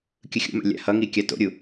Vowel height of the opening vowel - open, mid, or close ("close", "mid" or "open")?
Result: close